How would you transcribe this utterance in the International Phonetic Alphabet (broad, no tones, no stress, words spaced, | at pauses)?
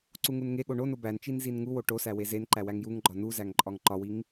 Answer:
ǀuŋunŋeɠo ɳo nobænt͡ʃin zinŋuwo ʈosæ wezenǃæ wæŋjuŋɡ͡ǃɒ nuzæŋ ǃʼɒŋǃɒwiŋ